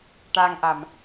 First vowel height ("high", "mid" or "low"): low